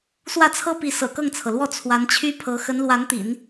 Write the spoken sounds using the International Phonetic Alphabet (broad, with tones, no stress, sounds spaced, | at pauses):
s w ä˥˩ t͡sʰ ɤ˥ p i˧˥ s ɤ̰˨˩ k ɤ˥˩ ŋ t͡sʰ ɤ˩ l w ɔ˥˩ t͡sʰ w a˧˥ n t͡ɕʰ y˥ pʰ ɤ˧˥ x ə˧˥ n l w a˧˥ n t̪ ḭ˨˩˦ n